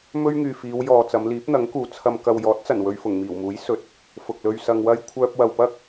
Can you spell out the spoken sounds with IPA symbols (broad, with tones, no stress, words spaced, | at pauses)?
mɵ˥ɥŋyː˨fiː˨˧wjɔː˨ t͡sɐ˨˧mliː˨˥p̚n̪ɐ˨˥ŋkuː˨ t͡sʰɐ˨mkɐ˨w jɔː˨˥t̚t͡sɐ˨˩n wɵ˧ɥfʊ˨˩ŋmiː˨˩wmuː˨˥j sɵ˨˥t̚ | fʊ˨k̚lɵ˧ɥ sɐ˧ŋwɐ˥j kʷʰœː˧p̚wɐ˨wpɐ˥k̚